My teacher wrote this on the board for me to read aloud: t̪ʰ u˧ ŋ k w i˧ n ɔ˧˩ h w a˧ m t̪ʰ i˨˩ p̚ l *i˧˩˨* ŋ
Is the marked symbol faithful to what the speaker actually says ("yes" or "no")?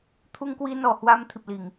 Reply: yes